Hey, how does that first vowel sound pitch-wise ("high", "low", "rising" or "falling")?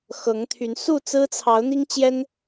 rising